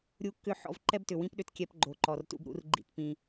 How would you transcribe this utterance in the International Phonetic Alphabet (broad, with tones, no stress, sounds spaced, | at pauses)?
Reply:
ɾʲ u˧ kː ʏ˦˨ ħ ɔ̰˧ v ǃ ɛ˦ b t ʏ˨ w ĩ˦ p ɗ ʏ˧ t kʲ ɛ˧ p ɡ͡ǃ o˨ ǃ ɔ˨ r t ṵ˦ b ɾ ṵ˦ r ɡ͡ǃ ḭ˦˨ t p ĩ˧